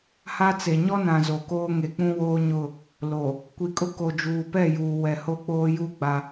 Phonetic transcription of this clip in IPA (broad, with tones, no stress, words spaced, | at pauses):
ha˦t͡se˨ ɲɔ˦nã˨ zo˨koː˦ ŋe˨k͡pũ˦woː˦ɲʊ˦˨ | lo˨ | kʷi˨kʼʊ˦ ko˨d͡ʒuː˨pɛ˦˨juː˨ wɛ˨ho˦k͡poː˦ju˦ ɡ͡ba˦